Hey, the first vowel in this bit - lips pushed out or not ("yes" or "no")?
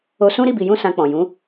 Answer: yes